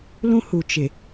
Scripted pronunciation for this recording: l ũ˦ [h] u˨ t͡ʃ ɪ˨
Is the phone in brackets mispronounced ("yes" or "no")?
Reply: no